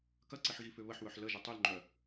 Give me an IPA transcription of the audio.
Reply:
kɐǀiħ ɣifʏβəħwœħ ləʒʏ tˤʏlŋ͡ǃœ

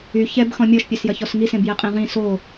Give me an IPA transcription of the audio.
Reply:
y çɛb xɔ̃mʲɔʃpʲœs jɐçɔsŋisẽb jɛqʼẽʁĩ so

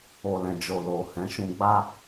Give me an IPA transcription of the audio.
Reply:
o˨lɛ̃˨d͡ʒo˨ lo˨ hɛ̃˨˦ ʃũ˧ɡ͡ba˦

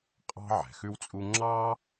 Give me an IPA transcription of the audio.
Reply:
qʼɑ̤˥ ʕɛ̤˩xʉ˥wt͡sʼu˥ ŋ͡ǁɑ˥

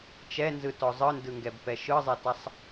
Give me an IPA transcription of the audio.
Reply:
t͡ʃɛnzɯtɔ zˤɯndɯŋɡɛbpɛ ʃɯzˤɛtasˤ

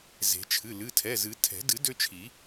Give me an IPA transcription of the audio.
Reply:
ze̤˨˩˦t͡ʃʰɨ˩˧˩ lɨ˩˧˩tʰɛ˩˧˩zɨ˨˩˦ tʰɛ̤˨˩˦ dɨ˨˩˦ dø˦t͡ʃʰi˨˩˦

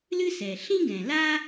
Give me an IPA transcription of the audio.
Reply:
lɨ˥sɛ˩ ɬĩ˥ɡɛ̃˩la˥

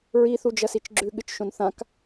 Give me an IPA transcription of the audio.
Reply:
ɹiθud͡ʒɐsit͡ʃ ɡ͡ǁʉɠɨt͡ʃʃõn θãk

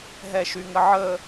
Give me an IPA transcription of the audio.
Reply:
ɦɛʃyŋəʕə

